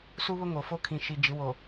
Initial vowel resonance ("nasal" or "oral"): oral